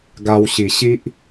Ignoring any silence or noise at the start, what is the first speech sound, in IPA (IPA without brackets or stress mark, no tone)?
ɡ